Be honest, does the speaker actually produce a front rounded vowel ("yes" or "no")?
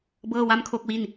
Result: no